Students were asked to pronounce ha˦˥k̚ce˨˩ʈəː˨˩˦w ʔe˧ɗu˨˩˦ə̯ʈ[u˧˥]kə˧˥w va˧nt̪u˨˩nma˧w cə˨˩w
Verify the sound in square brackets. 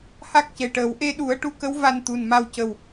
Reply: correct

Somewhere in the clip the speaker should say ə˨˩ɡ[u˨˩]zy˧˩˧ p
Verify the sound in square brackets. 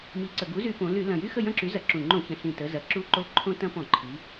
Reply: incorrect: u˨˥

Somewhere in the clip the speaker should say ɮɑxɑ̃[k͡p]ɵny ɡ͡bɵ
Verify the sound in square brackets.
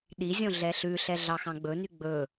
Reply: incorrect: ɡ͡b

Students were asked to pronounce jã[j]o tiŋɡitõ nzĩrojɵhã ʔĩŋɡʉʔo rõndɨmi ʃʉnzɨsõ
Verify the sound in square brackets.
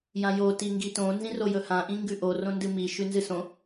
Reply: correct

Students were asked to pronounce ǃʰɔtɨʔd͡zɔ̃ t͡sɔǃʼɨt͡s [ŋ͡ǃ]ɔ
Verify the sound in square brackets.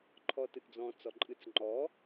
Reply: correct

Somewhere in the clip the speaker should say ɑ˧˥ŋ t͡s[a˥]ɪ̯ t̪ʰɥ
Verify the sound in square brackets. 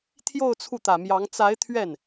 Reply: incorrect: a˧˥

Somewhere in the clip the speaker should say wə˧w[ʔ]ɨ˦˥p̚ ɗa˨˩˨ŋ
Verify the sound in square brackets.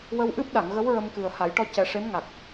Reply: correct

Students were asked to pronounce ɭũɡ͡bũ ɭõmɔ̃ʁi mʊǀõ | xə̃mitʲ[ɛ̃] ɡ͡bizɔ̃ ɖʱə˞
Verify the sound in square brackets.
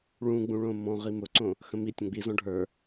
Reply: incorrect: ə̃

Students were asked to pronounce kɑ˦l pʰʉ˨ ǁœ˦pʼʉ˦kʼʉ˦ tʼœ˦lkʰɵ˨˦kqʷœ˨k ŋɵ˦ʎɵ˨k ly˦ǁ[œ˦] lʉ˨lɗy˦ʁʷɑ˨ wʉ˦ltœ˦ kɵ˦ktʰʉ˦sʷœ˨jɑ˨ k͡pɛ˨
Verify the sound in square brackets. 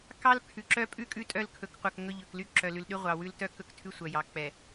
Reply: incorrect: œ˨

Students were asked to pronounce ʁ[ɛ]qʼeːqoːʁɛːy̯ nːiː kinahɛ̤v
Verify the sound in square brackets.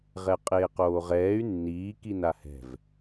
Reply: correct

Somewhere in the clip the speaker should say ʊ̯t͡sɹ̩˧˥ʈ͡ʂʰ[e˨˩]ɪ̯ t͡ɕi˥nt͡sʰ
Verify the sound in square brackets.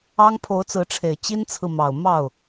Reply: correct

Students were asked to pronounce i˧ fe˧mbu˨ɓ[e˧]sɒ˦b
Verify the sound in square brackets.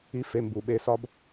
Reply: correct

